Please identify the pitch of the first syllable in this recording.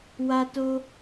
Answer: high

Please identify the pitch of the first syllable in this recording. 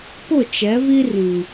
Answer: falling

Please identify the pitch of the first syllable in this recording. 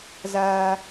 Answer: high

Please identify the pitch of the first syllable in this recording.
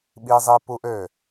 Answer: high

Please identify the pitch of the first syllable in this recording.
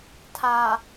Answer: low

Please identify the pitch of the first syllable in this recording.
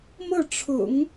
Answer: falling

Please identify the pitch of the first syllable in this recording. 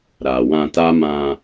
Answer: low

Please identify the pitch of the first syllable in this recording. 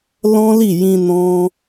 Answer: high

